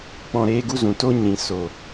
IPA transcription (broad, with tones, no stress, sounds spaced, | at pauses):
k͡p ɔ̃˧ ɾ eː˦ ɡ u˦ z ũ˨ t o˦ ɲ ĩ˨ s o˨